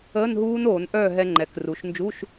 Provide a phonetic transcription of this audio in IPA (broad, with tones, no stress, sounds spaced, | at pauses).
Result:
əː˧˥˧ n ɦ uː˦˥ n oː˧˩˧ n ʔ œː˥˨ ɦ ɛ˧ ŋ͡ǃ ɛ˩˧ k r u˩˧ ʃ n d͡ʒ u˧˥˧ ʃ